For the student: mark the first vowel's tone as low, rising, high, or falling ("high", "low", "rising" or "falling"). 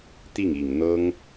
falling